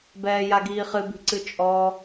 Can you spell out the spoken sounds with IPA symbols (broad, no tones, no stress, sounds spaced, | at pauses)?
b ɛː j a ɡ iː χ ɨ b i̤ ǀ ɨ t͡ʃʼ ɔ